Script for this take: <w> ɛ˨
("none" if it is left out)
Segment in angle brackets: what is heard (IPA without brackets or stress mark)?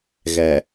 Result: ɣ